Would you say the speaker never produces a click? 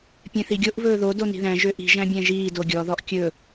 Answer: yes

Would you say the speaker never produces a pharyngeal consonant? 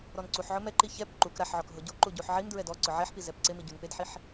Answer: no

